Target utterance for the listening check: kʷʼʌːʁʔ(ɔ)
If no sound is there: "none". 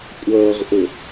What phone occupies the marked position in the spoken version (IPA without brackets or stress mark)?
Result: ʊ